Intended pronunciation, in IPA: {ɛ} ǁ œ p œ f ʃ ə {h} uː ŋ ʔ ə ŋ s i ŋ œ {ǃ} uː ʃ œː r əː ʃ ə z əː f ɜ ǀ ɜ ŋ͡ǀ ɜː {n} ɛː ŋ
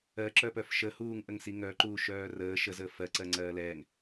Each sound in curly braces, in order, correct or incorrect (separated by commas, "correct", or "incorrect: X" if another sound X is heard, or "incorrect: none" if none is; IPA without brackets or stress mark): incorrect: ɜ, correct, correct, incorrect: l